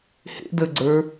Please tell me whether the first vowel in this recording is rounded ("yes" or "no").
no